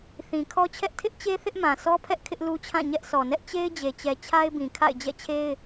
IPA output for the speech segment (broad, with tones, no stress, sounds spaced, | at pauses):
θ ĩ˨ kʰ ɔ˦ t͡ɕʰ ɛ˦ ʔ tʰ ɪ˦ ʔ t͡ɕ e˦ θ ɪ˦ ʔ m ã˨ s ɔ˦ pʰ ɛ˦ ʔ kʰ ɪ˦ ʔ l u˦ t͡ɕʰ ã˦˨ ɲ ɛ˦ ʔ sʰ ɔ˨ n ɛ˦ ʔ t͡ɕ e˦ ɪ̯ d͡ʑ e˨ t͡ɕ ɛ˨ t͡ɕʰ a˦ ɪ̯ b ĩ˨ kʰ a̰˦˨ ɪ̯ d͡ʑ ɛ̰˦˨ t͡ɕʰ e˦ ɪ̯